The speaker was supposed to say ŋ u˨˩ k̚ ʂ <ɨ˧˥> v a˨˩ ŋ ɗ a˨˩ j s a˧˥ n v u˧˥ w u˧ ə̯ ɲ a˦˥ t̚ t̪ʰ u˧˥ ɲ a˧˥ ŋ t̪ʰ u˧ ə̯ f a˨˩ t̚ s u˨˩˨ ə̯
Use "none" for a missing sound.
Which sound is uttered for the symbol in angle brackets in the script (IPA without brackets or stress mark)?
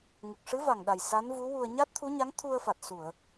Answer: ɨ˧˥